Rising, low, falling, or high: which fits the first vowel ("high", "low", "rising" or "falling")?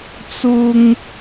high